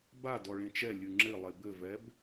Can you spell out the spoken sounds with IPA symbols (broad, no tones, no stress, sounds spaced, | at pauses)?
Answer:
b a d ɔ ɭ ẽ t͡ʃ ɛ lʲ ɨ ŋ͡ǁ ɘ lˠ e b ɘ v ɛ b